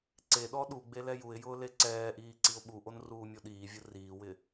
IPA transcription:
ǀeɗɔ ɗuɡ͡be lɛjuɪ̯jʊː leǀɛːʔiː ǀiʊ̯ɓuʔon ruːmʲoɗiːvʲʊ riːwɪ

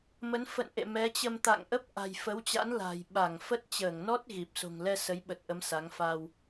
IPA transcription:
mə˨˦nfə̰˧˨nʔḛ˧˨ mɛ˨˦t͡ɕə˧mt̪a̰˧˨ŋ ʔə˦˥p̚ʔa̤˨˩jfə˨˦wt͡ɕa̰˧˥n la̤˨˩j ɓa˧˩ŋfə˦˥t̚ t͡ɕəː˧˩ŋnɔ˦˥t̚ ɣi˨˩p̚ so̤˨˩ŋlɛ˧ sə˨˦jɓə˨˩t̚ʔə˨˦m sa˨˦ŋ fa˧w

